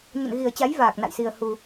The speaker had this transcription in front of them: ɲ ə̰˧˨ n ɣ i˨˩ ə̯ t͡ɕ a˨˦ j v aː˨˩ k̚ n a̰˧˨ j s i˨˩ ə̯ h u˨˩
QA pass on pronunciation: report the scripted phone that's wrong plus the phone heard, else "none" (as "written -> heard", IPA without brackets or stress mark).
none